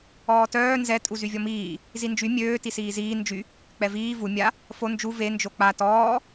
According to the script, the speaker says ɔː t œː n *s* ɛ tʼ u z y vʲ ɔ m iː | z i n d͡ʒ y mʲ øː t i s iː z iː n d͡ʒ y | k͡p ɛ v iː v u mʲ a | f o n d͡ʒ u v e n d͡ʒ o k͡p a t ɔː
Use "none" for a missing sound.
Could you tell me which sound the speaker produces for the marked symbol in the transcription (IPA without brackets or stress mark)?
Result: z